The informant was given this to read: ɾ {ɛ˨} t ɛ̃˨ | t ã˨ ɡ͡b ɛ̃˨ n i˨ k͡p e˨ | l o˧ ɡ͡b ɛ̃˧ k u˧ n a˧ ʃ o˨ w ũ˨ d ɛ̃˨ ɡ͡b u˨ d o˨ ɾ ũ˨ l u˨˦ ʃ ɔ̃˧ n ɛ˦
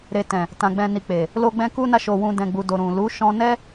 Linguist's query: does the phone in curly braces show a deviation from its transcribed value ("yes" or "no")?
yes